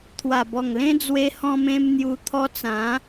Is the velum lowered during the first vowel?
no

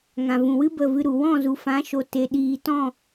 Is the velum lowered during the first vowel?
yes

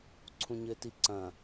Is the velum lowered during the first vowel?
yes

